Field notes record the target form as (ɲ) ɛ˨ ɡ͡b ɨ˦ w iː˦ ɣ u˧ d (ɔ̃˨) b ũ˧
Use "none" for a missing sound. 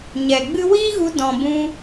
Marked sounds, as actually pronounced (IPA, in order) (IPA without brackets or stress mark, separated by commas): ɲ, ɔ̃˨